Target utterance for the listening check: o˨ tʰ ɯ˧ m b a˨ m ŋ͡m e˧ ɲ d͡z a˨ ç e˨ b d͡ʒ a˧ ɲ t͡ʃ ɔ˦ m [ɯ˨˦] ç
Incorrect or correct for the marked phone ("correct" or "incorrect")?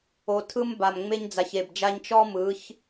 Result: correct